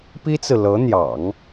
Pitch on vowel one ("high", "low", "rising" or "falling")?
high